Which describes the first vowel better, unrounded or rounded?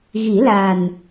unrounded